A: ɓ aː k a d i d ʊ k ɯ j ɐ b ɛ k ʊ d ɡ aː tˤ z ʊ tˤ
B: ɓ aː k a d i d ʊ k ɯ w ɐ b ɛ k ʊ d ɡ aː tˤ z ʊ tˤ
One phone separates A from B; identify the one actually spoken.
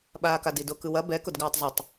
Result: B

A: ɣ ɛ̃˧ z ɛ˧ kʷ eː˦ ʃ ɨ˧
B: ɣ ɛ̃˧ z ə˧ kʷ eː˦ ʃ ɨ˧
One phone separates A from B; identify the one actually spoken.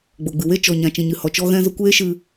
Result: B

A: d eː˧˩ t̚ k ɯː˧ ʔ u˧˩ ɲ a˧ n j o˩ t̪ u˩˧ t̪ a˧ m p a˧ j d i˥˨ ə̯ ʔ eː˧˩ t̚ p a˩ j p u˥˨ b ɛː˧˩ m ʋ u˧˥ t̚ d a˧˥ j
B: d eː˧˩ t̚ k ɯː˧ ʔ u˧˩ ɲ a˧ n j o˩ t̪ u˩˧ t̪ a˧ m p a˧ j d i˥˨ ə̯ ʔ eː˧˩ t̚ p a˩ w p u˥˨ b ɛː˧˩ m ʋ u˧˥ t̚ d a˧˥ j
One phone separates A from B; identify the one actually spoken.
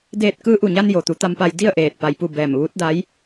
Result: A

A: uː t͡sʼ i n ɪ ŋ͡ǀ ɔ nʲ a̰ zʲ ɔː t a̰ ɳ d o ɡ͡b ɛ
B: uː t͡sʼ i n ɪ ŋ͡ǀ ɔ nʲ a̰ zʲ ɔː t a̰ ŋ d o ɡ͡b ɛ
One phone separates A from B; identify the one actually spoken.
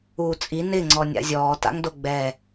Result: B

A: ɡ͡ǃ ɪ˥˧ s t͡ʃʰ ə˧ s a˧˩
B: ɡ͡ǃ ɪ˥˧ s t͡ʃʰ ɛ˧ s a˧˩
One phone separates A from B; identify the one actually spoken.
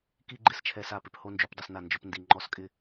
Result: B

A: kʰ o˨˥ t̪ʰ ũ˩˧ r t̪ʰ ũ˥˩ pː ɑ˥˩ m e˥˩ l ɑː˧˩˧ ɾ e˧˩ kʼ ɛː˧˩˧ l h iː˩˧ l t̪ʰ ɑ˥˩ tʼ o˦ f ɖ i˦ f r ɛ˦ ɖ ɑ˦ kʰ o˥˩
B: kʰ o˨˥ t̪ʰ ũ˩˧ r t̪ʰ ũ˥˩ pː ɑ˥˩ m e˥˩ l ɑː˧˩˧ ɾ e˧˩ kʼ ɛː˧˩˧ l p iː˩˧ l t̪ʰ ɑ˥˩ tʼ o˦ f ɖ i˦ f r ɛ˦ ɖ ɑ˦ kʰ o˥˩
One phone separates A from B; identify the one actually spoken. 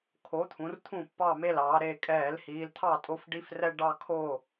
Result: A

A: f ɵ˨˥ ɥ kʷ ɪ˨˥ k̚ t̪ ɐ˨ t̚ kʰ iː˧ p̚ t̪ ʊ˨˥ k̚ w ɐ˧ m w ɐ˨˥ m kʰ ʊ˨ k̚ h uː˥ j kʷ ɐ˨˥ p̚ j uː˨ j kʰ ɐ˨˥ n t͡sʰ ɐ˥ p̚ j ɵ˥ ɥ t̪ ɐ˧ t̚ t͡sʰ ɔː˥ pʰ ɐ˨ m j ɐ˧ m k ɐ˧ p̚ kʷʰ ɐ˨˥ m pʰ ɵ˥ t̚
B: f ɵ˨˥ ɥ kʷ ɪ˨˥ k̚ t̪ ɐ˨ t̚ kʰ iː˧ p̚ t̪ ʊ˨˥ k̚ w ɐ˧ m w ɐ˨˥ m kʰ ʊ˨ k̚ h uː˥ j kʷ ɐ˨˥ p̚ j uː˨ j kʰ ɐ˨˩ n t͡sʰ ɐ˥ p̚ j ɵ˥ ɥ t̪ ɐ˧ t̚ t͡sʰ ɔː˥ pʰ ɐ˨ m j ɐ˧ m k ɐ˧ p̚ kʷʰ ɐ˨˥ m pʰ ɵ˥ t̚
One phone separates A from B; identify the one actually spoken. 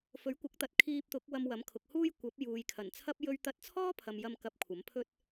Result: B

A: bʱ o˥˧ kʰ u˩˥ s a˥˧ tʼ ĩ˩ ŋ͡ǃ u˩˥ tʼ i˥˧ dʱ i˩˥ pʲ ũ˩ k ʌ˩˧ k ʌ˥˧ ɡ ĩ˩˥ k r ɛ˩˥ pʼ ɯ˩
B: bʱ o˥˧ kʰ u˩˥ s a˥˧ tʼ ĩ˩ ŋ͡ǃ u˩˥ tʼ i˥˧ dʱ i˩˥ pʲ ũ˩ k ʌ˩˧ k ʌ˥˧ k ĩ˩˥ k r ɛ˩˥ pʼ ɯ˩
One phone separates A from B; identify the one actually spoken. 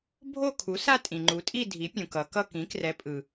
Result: B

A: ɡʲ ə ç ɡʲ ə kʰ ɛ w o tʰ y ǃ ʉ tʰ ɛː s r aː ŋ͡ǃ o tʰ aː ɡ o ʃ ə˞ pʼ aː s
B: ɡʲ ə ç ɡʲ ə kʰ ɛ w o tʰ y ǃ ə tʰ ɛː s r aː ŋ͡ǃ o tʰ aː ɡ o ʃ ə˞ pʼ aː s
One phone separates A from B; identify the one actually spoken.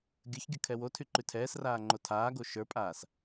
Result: A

